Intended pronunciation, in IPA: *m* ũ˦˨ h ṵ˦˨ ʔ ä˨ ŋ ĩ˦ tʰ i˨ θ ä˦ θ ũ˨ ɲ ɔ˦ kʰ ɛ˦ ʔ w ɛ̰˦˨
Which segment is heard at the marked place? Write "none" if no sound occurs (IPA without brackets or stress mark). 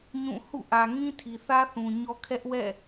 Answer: ɲ